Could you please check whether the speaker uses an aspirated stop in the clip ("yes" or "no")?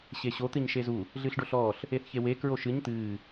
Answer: no